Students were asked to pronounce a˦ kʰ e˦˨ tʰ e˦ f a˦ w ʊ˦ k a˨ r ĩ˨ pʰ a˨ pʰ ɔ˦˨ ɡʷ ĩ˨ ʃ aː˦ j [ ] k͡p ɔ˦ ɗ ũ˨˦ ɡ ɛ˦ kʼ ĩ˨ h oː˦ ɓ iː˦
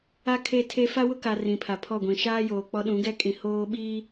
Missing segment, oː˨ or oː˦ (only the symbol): oː˨